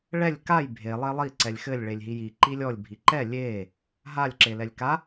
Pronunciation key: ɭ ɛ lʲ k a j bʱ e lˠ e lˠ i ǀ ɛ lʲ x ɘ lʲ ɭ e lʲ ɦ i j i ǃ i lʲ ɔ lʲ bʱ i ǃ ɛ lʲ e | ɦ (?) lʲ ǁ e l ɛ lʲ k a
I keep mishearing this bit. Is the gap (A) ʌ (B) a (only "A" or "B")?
B